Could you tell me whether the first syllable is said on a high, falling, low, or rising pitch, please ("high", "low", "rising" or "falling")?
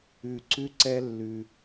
low